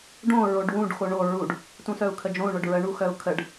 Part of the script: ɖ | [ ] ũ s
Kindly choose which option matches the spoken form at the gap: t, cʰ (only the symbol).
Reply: t